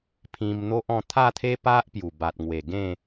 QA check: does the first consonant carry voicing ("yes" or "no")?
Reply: no